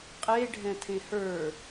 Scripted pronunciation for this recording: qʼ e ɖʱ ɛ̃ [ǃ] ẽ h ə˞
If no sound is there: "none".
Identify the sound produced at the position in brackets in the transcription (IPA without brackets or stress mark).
tʰ